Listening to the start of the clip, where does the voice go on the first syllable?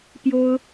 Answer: high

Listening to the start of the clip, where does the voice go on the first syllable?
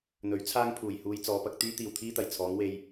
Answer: rising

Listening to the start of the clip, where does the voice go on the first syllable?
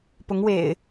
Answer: rising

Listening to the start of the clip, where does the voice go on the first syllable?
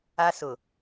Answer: high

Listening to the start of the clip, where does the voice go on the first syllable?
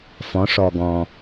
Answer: rising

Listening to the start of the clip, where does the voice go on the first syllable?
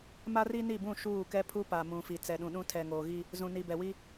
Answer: high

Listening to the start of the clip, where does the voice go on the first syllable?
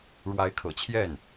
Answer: rising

